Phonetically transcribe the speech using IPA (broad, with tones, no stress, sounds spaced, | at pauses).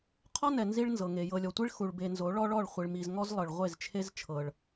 qʰ ɔ˦ n ɛ˨ n z i˦ ɭ n z ɤ˨ ŋ e˨ j ɤ˨ lʲ ɔ˨ tʷ i˦ ɭ x u˨ ɭ b e˨ n z o˨˦ ɭ ɔ˦ ɭ ɔ˦˨ ɭ χʷ i˨ ɭ m i˨ z ŋ ɔ˦ z lˠ ɤ˨ ɭ ʁʷ e˦˨ z t͡ʃʰ e˦ z t͡ʃʰ ɤ˨ ɭ